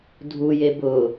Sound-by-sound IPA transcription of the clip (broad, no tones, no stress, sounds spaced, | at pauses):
dʱ u j e b ʊ